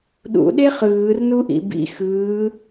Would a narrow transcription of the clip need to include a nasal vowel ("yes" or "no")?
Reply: no